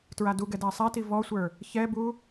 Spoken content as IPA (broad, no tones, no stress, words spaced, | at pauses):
tɹaduɡɛ dæsˤæti vɔsʷə˞ | çɛbu